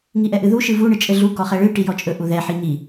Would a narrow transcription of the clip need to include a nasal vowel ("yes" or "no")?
no